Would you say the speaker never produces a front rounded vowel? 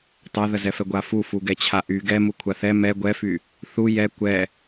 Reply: no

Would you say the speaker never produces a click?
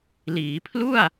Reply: yes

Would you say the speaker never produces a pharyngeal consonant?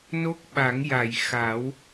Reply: yes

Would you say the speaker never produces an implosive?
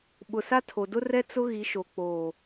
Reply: no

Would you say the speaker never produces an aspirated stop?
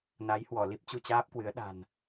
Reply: yes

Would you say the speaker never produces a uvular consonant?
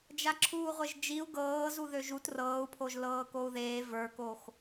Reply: no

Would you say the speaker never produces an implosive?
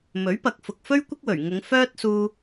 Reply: yes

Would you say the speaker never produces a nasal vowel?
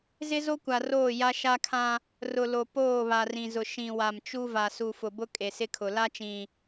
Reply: no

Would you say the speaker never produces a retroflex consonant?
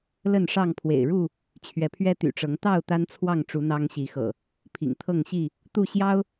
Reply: no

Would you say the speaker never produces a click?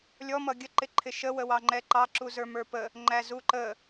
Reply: no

